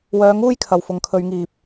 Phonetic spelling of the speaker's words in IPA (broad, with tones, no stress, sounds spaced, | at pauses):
w œː˧ ŋ uː˥ j kʰ ɐ˨ w f ʊ˨˧ ŋ kʰ ɵ˧ ɥ ŋ iː˨ p̚